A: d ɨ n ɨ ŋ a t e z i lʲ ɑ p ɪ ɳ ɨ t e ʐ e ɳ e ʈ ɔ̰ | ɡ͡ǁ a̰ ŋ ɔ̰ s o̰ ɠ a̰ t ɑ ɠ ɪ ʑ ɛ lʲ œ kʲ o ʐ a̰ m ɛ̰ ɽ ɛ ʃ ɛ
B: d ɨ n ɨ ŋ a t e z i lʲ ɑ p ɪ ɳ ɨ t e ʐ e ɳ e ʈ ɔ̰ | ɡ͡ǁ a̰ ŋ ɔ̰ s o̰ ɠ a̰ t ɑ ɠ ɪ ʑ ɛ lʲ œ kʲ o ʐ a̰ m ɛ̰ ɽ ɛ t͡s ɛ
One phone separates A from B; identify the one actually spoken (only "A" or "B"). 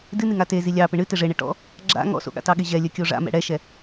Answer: A